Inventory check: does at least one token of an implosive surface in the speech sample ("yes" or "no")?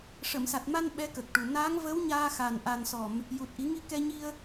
yes